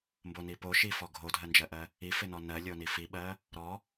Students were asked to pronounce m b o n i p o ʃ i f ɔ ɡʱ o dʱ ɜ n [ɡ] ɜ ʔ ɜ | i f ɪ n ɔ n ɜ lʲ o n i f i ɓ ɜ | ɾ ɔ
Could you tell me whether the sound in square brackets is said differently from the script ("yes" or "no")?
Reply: yes